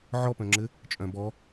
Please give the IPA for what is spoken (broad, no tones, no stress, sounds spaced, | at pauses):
ʕ ɔ p œ̃ ŋ͡ǁ ɘ | t͡ʃʼ œ̃ b ɔ